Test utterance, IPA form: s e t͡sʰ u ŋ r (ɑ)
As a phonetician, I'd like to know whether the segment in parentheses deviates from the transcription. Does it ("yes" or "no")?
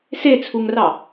no